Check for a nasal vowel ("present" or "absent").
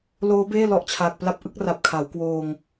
absent